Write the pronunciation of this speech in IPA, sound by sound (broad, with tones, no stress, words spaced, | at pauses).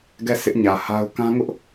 ɡɛ˦˨ sʰɪ˦ʔ ɲä˨ha˦ʊ̯ kã˦ ŋʊ˦ʔ